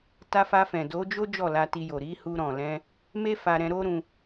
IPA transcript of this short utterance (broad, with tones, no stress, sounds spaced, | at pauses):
t a˧ f a˧ f ɛ̃˨ d o˨˦ d͡ʒ o˦ d͡ʒ ɔ˦˨ l a˧ t i˧ j o˨ ɾ i˨˦ h u˧ ɾ ɔ̃˨ l ɛ̃˧ | m e˦ f a˧ ɾ ɛ̃˧ ɾ o˦ ɾ ũ˧